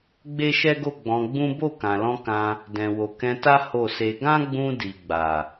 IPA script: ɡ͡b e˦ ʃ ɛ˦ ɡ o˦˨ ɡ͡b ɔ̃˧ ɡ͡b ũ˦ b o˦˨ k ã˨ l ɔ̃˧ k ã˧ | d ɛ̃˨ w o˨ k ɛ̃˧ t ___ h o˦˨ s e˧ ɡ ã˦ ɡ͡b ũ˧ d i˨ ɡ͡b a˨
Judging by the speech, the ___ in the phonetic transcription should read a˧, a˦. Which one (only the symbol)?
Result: a˦